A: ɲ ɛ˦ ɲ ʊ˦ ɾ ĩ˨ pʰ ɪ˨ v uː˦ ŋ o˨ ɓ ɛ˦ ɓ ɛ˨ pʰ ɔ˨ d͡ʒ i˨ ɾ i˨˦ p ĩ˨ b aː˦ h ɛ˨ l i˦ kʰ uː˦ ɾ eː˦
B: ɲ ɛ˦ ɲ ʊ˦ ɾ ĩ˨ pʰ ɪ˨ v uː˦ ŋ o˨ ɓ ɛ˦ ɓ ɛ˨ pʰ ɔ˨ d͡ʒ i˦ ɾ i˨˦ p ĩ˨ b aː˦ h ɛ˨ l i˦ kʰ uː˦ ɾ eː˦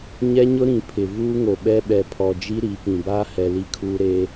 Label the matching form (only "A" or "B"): B